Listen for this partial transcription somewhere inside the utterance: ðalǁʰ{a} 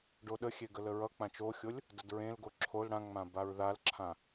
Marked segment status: incorrect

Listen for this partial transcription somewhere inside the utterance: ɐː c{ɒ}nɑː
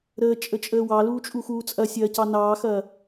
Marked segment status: incorrect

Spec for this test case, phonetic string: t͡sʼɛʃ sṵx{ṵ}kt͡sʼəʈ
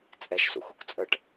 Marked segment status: incorrect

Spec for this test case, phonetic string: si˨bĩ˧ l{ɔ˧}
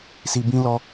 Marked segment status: correct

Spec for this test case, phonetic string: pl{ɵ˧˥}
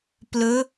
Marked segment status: incorrect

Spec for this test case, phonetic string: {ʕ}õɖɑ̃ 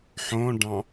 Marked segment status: incorrect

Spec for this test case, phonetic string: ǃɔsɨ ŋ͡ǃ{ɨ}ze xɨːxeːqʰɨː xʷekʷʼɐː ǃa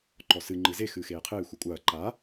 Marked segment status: correct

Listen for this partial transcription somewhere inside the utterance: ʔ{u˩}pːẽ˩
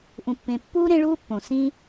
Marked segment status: incorrect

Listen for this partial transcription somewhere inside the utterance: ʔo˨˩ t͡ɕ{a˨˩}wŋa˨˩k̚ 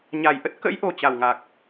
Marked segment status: correct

